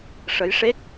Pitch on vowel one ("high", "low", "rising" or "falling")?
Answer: rising